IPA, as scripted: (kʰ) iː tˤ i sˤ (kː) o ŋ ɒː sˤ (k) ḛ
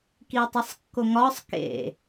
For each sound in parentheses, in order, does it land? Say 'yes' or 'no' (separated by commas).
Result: no, yes, yes